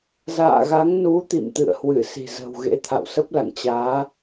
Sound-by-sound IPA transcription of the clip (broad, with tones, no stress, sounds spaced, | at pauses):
z a̰ː˧˨ ɣ a˨˦ ŋ n u˨˦ t̪ ḭ˧˨ m t̪ ɨ̰˧˨ ə̯ h w ɨ˧˩ s i̤˨˩ z ə̤˨˩ w ɣ ḛ˧˥ t̪ʰ a̰˧˨ w s ə˦˥ p̚ l a̰˧˨ ŋ t͡ɕ aː˨˦